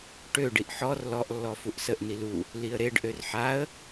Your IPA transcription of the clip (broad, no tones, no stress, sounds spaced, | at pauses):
ʈ ø ɖ i ʔ ħ ɔ r l ɔ ʔ lː ɔ f u ʔ s ə ʔ n i l u | l i ə̯ ɾ e ɖ ʔ ø r ħ a ə̯